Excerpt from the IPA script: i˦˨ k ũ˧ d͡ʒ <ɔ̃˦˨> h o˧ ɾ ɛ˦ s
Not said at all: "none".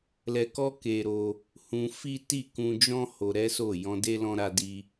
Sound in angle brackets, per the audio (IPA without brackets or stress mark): ɔ̃˦